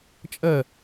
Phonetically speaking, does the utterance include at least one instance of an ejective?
yes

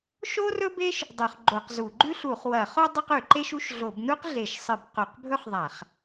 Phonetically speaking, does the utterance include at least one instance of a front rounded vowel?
no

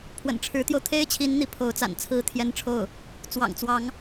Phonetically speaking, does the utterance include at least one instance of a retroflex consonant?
yes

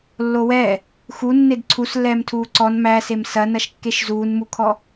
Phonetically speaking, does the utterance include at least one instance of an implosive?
no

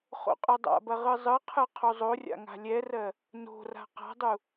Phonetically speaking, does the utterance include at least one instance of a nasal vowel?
no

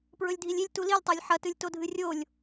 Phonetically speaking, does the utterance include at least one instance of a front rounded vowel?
no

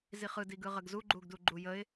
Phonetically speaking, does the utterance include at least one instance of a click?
yes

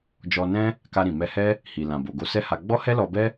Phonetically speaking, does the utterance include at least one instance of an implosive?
no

